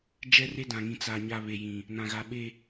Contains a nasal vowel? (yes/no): yes